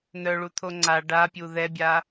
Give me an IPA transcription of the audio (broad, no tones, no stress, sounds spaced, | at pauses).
n̪ œ ɭ u t̪ʰ o ŋ͡ǀ a ɖ a pʲ u ð ɛ bʲ a